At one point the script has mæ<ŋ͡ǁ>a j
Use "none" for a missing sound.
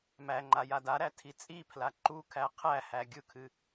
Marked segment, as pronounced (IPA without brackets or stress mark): ŋ͡ǃ